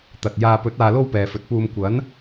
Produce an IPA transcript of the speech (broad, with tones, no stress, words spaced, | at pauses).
t̪ɐ˨t̚jaː˧ pɵ˨˥t̚aː˨lo˧w pɛː˨fɵ˨˥t̚ puː˨m kʷɐ˨˥n